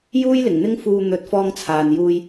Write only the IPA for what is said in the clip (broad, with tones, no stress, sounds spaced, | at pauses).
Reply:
j uː˥ j l ɪ˨˩ ŋ n̪ ɪ˥ ŋ f uː˧ n̪ ɵ˨˥ t̚ f ɔː˧ ŋ t͡sʰ aː˨ n j uː˨ j